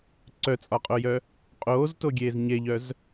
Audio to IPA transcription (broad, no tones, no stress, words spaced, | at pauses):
ǀœt͡sʼɒqʼojœ | qʼoːztoɡʲeːz ɲeʎœz